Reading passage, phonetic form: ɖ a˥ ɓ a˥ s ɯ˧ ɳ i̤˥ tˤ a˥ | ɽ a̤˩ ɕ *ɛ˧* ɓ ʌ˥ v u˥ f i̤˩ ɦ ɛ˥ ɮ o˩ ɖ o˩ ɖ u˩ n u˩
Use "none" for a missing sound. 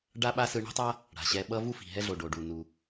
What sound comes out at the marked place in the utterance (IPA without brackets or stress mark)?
ɛ˧